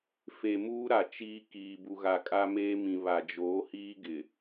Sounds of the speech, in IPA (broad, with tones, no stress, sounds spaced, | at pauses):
f e˨ m uː˦ ɾ a˨ t͡ʃ iː˦ k iː˨ b u˨ ɣ a˨ kʼ a˦ m eː˦ m ĩ˨ β a˨ d͡ʒ oː˨˦ h iː˦ ɡ ɪ˨